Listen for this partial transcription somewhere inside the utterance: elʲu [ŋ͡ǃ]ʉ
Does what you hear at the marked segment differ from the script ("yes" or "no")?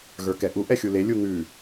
yes